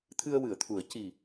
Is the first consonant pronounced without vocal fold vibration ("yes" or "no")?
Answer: yes